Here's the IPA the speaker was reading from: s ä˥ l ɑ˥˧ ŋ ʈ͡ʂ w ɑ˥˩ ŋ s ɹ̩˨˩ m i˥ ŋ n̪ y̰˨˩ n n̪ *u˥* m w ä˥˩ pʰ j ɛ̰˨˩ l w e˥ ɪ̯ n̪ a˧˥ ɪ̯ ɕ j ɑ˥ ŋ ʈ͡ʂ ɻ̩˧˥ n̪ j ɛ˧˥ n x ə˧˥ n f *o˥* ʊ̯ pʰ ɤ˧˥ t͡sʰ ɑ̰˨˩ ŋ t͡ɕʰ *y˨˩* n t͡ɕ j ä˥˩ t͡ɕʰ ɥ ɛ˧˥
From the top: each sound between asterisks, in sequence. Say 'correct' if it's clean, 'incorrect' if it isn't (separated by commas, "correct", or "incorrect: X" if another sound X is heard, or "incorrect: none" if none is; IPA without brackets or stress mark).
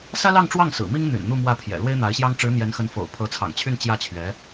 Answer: incorrect: u˥˧, incorrect: o̰˨˩, incorrect: y˥˧